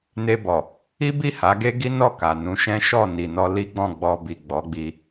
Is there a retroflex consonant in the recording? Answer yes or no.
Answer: no